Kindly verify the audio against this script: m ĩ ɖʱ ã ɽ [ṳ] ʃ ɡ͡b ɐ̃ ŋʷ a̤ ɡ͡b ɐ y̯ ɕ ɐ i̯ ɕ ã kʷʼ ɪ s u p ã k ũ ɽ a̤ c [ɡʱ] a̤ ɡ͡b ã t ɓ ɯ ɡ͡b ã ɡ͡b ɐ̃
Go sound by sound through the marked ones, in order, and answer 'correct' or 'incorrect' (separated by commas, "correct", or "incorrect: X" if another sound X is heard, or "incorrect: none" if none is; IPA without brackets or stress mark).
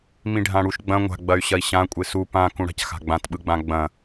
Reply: incorrect: u, incorrect: x